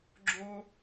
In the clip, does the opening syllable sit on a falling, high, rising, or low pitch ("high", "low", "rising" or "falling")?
high